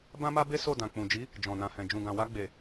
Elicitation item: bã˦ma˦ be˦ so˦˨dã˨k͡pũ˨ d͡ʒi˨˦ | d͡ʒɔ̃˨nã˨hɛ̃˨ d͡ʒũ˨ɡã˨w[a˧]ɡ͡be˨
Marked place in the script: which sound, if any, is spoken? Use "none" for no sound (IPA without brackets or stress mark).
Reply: a˧